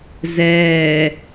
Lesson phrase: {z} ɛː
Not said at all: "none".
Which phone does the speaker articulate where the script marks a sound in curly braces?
z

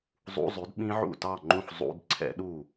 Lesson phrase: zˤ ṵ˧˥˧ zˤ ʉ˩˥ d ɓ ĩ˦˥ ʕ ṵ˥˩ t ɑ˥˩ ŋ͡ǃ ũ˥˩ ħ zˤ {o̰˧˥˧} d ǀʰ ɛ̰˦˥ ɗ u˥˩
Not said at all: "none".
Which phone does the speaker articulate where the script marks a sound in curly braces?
ṵ˧˥˧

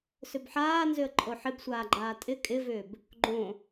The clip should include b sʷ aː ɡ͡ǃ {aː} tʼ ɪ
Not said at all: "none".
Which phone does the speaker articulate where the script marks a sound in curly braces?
aː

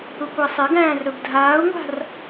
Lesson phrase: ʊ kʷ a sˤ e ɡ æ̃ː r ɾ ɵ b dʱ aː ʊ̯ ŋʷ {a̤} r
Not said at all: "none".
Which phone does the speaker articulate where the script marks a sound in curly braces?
a̤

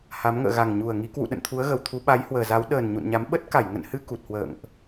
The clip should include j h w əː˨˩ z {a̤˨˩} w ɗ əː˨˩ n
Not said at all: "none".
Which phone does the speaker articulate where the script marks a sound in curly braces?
a˨˦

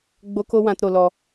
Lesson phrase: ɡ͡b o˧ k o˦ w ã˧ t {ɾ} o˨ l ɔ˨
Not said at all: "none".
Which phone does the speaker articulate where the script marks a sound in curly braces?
ɾ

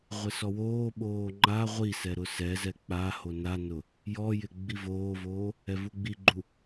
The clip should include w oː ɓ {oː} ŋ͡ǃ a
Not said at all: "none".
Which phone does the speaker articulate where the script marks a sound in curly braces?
oː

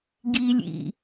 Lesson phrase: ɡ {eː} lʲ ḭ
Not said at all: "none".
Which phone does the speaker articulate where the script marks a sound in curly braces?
iː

